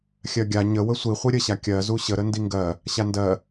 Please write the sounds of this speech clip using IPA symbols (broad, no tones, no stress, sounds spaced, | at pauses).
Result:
xʲ ɜ ɡʲ a ɲ ə w ə sʷ i χʷ i ɾʲ ə ɕ a kʲ ɜ z u ɕ ə ɾ ə n d i ŋ ɡ ɜ | ɕ a n d ɜ